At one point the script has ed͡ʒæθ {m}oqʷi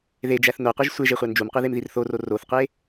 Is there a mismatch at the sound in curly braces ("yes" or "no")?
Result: yes